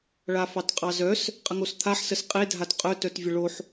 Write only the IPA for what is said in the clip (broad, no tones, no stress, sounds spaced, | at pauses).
ɭ a f ɑ t qʼ ɑ z œ s | qʼ ə ŋ o s t̪ʰ a ħ s ə s qʼ e dʱ a t qʼ œ t œ t vʲ ə ɭ o ħ